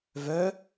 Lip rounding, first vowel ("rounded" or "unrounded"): rounded